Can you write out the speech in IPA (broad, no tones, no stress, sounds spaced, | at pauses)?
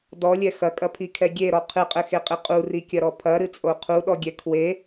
d ɔ lʲ ɛ x ɐ kʼ ɐ pʰ i kʰ ɛ ɡʲ e ɾ ɔ qʰ ɨ qʼ ɘ x e qʼ i qʼ u r i kʲ ɐ ɾ ɔ pʰ ɐ ɾ ɨ t͡sʼ o qʰ u ɗ ɔ ɡʲ ɛ kʰ w e